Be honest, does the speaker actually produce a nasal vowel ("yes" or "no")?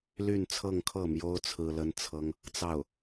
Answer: no